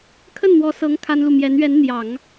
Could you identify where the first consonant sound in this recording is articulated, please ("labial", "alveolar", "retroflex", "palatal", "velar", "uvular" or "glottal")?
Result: velar